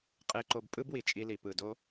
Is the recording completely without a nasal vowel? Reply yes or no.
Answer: yes